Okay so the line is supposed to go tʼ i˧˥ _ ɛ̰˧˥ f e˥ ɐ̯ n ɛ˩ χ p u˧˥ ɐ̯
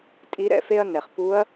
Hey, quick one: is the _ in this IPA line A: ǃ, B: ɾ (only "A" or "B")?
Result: B